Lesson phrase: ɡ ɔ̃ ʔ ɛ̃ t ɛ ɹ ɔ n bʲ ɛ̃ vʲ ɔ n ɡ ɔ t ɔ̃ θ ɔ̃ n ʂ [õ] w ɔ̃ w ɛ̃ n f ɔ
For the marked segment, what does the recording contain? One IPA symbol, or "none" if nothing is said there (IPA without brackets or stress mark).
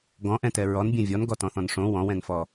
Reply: õ